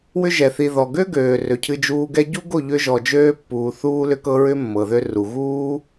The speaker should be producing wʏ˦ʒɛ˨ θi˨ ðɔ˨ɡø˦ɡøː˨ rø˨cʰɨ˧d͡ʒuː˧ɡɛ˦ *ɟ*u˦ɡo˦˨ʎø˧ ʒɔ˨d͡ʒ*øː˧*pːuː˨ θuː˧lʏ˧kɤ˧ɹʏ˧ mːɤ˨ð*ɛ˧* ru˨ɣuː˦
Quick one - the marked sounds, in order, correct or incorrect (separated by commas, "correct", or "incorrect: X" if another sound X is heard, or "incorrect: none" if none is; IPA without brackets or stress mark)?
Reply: correct, correct, incorrect: ø˧